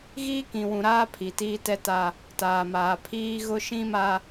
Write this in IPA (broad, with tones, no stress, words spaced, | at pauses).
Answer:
ɣiː˦kĩ˨wũ˨ɾaː˦ pʰi˨tiː˦tɛ˦ta˦ | taː˨ maː˨pʰiː˦ɣʊ˦ ʃĩ˦ma˦